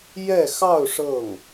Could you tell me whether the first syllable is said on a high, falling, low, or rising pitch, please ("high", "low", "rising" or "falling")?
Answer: falling